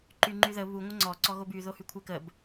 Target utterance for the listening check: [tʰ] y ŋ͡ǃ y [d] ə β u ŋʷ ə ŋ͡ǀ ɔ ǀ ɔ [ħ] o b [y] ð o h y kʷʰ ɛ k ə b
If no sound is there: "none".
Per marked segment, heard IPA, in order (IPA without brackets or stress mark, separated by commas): ǃ, ð, ɣ, y